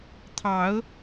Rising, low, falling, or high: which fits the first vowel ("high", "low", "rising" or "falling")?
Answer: rising